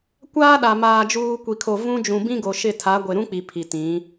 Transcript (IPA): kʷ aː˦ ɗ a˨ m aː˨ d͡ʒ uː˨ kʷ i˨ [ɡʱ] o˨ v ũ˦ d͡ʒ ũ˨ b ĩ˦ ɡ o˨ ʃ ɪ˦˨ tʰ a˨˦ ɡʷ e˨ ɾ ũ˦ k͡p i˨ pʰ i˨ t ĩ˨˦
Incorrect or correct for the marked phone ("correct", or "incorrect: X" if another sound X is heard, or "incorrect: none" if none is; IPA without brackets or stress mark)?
incorrect: kʰ